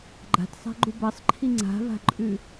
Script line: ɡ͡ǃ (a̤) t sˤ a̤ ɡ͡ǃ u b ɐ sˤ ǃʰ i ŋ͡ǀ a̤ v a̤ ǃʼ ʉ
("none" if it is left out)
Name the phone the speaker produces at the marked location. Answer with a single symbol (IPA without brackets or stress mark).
a̤